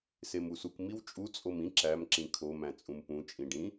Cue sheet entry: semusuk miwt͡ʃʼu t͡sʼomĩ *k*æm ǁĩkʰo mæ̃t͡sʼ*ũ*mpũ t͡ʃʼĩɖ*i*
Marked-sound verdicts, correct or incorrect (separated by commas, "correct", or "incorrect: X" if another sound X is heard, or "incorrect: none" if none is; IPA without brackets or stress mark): incorrect: ǁ, correct, incorrect: ĩ